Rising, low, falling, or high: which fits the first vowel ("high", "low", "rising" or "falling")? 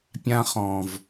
high